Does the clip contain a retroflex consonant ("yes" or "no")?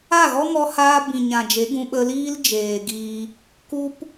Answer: no